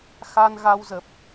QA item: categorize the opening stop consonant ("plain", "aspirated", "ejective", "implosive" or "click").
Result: plain